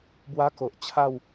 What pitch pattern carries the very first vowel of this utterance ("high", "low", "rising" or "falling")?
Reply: high